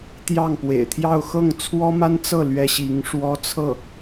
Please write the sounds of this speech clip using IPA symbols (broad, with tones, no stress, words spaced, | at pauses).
t̪jɑ˥˩ŋpwḛ˨˩ɪ̯t̪ʰjɑ˥˧ʊ̯ xɤ˥˩ŋt͡sʰwɔ˥ma˥n t͡sɤ˥˩ lɥɛ˥ɕi˧˥ŋ ʂwɔ˥t͡sʰɤ˥˩